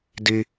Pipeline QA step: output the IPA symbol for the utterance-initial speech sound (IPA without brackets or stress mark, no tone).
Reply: d